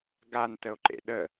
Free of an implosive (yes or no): no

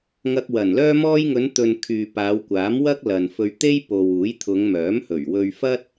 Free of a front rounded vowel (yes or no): no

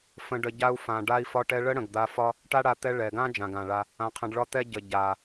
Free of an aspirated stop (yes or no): no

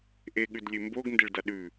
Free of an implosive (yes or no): no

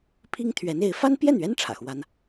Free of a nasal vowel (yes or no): yes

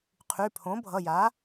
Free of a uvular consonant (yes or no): no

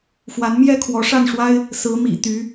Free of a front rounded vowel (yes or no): no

